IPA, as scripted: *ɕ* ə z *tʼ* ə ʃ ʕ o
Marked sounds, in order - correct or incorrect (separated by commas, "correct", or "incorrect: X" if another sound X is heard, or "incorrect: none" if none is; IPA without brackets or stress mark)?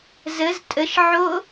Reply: incorrect: z, correct